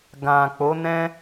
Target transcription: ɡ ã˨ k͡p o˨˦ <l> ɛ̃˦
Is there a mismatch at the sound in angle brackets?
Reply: yes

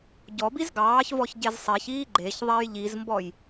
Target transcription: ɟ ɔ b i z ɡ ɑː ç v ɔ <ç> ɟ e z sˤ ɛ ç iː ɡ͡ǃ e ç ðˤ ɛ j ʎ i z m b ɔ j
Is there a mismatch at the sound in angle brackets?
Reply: no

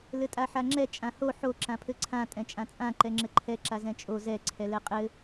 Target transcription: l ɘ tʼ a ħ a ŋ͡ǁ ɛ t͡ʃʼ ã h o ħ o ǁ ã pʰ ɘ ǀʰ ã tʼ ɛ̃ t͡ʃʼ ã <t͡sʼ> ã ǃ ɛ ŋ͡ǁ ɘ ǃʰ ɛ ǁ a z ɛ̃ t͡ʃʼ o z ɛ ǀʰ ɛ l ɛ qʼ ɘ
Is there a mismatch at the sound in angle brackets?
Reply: no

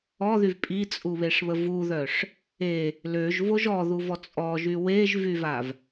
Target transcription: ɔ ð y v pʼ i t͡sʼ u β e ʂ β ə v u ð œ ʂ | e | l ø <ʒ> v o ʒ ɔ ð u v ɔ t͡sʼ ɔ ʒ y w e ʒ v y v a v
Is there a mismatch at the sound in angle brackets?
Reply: no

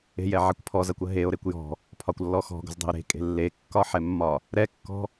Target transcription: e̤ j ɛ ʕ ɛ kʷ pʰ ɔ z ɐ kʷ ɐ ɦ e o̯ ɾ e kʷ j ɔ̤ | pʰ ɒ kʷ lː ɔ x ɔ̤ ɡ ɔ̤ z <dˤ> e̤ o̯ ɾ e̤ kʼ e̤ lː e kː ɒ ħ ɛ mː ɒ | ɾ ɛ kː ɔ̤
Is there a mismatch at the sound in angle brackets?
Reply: no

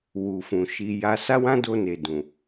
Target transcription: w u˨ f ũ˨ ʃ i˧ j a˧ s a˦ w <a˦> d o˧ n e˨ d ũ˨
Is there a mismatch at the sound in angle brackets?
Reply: yes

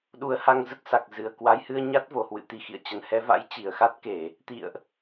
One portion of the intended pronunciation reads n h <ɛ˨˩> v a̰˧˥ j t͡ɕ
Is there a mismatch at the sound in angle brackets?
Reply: yes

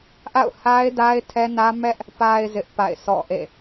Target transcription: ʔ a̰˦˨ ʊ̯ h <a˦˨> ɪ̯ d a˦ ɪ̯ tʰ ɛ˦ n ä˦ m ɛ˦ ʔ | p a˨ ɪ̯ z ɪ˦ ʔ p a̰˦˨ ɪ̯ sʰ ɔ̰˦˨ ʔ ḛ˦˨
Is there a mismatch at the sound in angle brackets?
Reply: yes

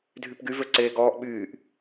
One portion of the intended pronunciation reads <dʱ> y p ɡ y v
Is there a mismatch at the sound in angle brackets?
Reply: no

